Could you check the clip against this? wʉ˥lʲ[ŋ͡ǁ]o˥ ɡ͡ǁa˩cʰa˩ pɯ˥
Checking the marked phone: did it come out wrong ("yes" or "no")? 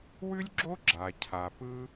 yes